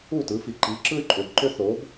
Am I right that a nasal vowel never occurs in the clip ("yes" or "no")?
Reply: yes